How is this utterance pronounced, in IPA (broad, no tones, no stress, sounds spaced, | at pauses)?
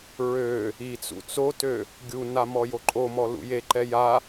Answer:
ɹ ø | i t͡s ṵ t͡s o t ø | ɡʲ u n a m ɔ j o ǃʼ o m ɔ l ṵ j e ǃ ɛ j a